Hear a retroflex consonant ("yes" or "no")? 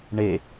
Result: yes